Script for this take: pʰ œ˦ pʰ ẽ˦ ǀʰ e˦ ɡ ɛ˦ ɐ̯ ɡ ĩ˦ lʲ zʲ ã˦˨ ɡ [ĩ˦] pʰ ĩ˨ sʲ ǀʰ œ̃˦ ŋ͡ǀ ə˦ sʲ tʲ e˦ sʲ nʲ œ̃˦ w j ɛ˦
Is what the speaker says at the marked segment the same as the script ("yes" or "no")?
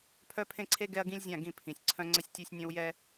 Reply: no